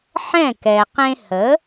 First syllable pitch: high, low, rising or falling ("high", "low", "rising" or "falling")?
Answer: falling